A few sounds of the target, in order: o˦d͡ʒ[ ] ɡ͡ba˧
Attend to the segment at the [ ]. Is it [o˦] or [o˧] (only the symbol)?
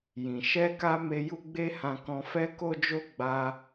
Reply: o˦